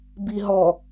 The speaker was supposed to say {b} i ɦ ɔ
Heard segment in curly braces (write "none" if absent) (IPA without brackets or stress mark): b